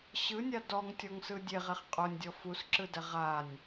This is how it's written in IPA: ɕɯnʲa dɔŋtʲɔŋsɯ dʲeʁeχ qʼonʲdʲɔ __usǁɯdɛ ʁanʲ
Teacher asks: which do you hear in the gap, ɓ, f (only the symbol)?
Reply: f